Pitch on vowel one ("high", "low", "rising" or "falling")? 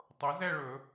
rising